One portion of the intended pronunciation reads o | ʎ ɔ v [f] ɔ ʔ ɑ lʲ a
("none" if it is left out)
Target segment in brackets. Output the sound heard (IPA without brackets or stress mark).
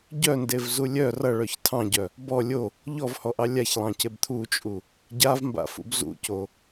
h